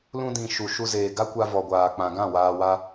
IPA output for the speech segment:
l ũ˧ d ĩ˨ ʃ u˨ ʃ u˧ z eː˨ ɡ a˦ kʷ a˧ v ɔ˨ ɡʷ aː˨ k͡p ã˨ ɡ ã˦˨ w aː˧ w a˦

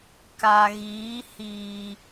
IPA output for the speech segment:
k a˨ ɣ iː˨˦ h iː˨

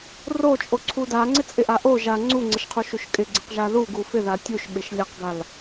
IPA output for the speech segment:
r o t͡ʃʼ o ǀʰ u d a ŋ͡ǀ ɪ t͡sʼ ɪ ʔ a ʔ o ʒ a ŋ͡ǀ u ŋ͡ǀ ɪ ʃ qʰ u ʃ u ʃ kʼ ɪ ɡ͡ǀ ɪ q ʒ a ð u ɡ u f ɪ ð a tʲ u ʃ ɓ ɪ ʃ lʲ a q ɡ a l

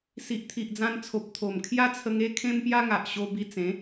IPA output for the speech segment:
s i˨ ʔ t̪ʰ i˨ ʔ d͡z ã˧ n t͡sʰ o˨ p̚ t̪ʰ o˨˩ m kʰ j a˦ t͡sʰ ə˧ ŋ e˦ kʰ ẽ˦ m p j a˦ ŋ a˨ ʔ ɕ o˧ b i˧ t͡s ẽ˨˦

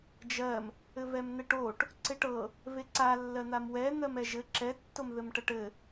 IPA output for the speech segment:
d͡ʒ ɜ m | ɘ v ɛ m n̪ ɛ ʈ o ʈ | ǀ e ʈ ɤ | v e ǀ a lː ɜ n̪ a m w ɛ n̪ ɜ m ɛ ʒ ɘ ǁ ɛ tː o m ð ɘ m ʈ ɜ ʈ ɘ

